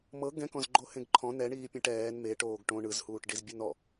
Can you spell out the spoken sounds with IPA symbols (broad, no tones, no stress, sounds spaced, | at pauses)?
m ɤ ɡ ɛ̃ k ɔ̃ z ɡ͡ǃ o h ẽ ɡ ǃʰ ɔ̃ n ɛ ɳ iː pʲ ɛ̃ ʈ ɛː n m e ʈ oː ɡ ʈ õ ɳ ɯ z h uː ʈ ɖ i z bʲ ɯ n ɔ